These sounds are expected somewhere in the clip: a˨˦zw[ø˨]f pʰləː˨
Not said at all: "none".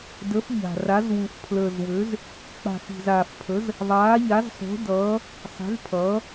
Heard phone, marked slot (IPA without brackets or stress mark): u˨